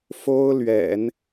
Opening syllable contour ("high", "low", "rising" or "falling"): high